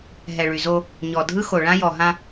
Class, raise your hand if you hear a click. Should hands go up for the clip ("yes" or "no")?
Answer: no